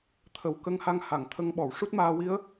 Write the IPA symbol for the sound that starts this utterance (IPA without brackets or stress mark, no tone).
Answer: t̪ʰ